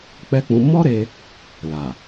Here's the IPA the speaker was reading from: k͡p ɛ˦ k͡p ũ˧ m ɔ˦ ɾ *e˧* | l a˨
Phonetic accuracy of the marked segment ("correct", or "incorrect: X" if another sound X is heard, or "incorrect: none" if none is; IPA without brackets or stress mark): correct